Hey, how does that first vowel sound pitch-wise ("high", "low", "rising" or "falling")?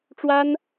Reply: high